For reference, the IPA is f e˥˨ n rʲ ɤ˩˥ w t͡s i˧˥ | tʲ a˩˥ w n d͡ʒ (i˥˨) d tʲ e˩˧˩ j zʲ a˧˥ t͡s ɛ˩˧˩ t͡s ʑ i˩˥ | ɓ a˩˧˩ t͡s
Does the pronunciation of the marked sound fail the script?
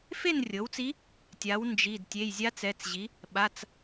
yes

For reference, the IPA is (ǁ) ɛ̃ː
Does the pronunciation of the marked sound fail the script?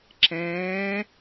no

